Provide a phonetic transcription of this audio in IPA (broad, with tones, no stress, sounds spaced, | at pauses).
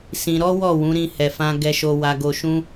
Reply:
s ĩ˧ ɾ ɔ˦ w ɔ˦˨ w ũ˨˦ ɾ ĩ˧ h ɛ˨ f ã˧ ɡ ɛ˧ ʃ o˧ w a˧ ɡ o˧ ʃ ũ˦